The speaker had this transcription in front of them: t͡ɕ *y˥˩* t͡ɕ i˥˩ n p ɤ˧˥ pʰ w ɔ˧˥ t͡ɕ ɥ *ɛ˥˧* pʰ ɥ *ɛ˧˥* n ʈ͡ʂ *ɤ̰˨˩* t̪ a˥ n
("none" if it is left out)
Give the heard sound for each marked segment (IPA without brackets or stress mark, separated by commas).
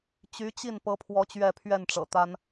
y˧˥, ɛ˥˧, ɛ˥˩, ɤ̰˨˩